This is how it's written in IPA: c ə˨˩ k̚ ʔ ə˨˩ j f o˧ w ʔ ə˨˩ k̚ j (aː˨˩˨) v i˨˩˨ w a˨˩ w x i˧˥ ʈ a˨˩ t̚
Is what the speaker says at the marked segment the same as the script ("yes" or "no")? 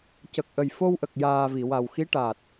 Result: no